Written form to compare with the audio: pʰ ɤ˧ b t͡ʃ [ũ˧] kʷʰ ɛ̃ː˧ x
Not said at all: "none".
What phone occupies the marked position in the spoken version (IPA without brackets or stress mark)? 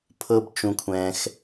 ũ˧